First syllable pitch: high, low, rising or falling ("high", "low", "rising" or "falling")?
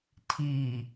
low